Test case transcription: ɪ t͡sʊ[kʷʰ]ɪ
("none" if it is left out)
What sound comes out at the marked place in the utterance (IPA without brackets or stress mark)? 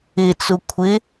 kʷʰ